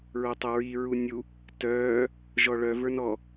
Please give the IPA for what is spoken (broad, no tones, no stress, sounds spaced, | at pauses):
ɹ o tˤ ə ɹ i ɹ u nʲ u | t œː | ʒ ɔ ɭ œ v ə˞ n ɔ